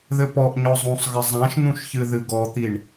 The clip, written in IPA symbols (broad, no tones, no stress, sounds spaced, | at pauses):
ð ɘ p ɔ ʔ ɲ ɔ zˤ ũ sˤ ɣ ɘ zˤ ã ʃ n̪ ũ ʃ ç ɨ ð ɨ ɡ ɔ t̪ i ɳ